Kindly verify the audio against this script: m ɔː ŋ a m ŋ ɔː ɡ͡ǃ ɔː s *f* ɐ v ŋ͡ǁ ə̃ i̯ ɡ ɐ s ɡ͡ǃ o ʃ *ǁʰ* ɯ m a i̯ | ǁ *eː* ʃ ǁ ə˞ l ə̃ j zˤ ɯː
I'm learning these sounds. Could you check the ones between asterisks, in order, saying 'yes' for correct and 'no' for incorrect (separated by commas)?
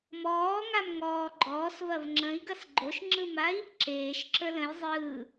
no, no, yes